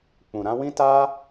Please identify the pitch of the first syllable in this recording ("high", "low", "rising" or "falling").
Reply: low